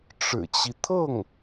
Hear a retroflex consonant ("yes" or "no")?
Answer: yes